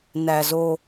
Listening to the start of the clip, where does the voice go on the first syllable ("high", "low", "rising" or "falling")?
low